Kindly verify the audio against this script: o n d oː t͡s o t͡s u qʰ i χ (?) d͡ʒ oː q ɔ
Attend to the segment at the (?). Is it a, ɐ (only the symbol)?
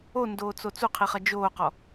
ɐ